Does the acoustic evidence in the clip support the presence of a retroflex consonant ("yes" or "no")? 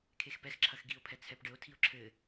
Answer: yes